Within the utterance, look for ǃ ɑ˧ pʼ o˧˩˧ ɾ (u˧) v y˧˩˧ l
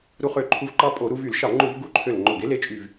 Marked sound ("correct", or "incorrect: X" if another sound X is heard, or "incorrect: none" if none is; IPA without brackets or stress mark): correct